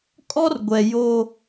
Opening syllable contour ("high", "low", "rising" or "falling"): high